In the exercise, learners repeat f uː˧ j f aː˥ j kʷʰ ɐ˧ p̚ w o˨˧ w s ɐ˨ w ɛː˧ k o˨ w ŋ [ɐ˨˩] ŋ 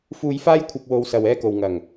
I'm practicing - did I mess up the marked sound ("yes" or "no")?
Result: no